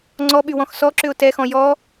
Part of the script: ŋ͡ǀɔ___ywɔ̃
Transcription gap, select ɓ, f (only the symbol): ɓ